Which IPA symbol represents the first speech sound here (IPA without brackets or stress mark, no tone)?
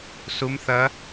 s